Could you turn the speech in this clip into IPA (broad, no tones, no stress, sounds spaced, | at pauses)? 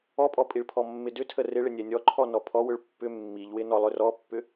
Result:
ɔ pʼ ɔ pʼ i ɭ pʰ ɔ mː ɪ d ʏ tʰ ə r ɪ ɭ ɪ nʲ ɛ nʲ ɔ ǃʰ ɔ n ɔ pʰ ɔ w ʏ ɭ pː ʏ mː i ʎ w ɪ n ɔ lˠ ʏ r ɔ pː ʏ